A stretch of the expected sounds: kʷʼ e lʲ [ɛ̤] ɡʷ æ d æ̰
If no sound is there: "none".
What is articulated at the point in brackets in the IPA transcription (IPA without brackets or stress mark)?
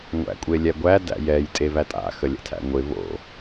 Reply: ɛ